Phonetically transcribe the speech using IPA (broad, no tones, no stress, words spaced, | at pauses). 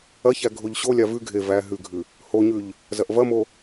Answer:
ɐçæ ɡʱoʎɕolʲa vʉ ɡʱe væ ɦʉɡʱʉ | hoɲʉʎ | zɐʔvɐmo